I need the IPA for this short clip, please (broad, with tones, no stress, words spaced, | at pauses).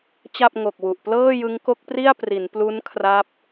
t͡ɕa˥˩p̚ŋo˨˩k̚wu˨˩ʔ plɤː˥˩jɯ˦˥ŋko˦˥k̚pri˥˩a̯ pri˩˦nplu˦˥n kʰra˦˥p̚